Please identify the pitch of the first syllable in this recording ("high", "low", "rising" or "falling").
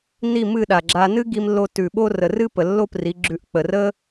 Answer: falling